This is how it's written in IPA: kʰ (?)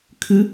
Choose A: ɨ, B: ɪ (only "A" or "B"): A